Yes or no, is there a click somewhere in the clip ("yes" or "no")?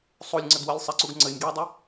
yes